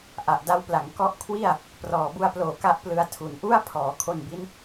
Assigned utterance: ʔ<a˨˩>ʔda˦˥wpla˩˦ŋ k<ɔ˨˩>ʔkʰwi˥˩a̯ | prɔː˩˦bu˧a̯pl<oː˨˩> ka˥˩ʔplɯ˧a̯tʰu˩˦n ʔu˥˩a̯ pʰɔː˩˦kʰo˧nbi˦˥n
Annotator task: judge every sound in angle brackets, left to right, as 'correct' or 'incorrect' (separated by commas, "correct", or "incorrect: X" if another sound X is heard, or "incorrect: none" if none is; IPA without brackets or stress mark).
correct, incorrect: ɔ˦˥, correct